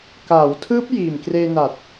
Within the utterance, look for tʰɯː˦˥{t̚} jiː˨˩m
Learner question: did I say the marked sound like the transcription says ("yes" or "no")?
no